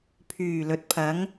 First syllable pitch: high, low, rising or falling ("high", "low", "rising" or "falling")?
low